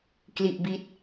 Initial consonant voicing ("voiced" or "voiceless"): voiceless